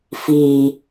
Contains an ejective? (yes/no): no